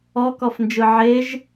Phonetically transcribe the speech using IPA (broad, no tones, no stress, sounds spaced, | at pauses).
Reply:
ɔ k ɔ f n d͡ʒ ɯ ʕ e ʒ